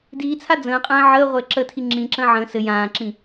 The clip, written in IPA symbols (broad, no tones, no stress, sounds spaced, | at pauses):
d iː t͡sʰ a d͡z ə̃ː qʼ ə̃ː ʕ əː ʁʷ ɘː ǁ ə tʰ i ŋ͡ǁ ĩ ǁ ə̃ː ʕ ə̃ː s ɘ j ãː ǁ ĩ